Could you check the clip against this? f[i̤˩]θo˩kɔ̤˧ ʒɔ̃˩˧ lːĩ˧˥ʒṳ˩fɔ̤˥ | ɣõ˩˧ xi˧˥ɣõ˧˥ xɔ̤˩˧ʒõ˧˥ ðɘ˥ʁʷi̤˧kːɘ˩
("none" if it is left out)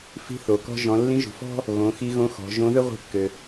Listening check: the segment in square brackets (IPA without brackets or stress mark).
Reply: i̤˧